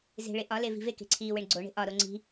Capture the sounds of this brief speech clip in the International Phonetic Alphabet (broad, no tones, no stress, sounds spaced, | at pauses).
z e̤ ɭ e ʔ ɒ l e v i̤ v e k e̤ ǀʰ iː w e ɳ ɡ͡ǀ o ɳ e̤ ʔ ɒ ɾ o ŋ͡ǀ i̤